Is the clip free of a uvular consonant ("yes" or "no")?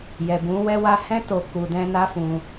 yes